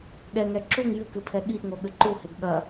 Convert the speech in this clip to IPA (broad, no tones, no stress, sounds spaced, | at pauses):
ɠ ɛ ŋ ɛ ǁ u ŋ j ɨ k ɨ pʰ ɛ ɠ i ʔ ŋ o ɠ ɘ ǃ u h e ɡ ɠ ɐ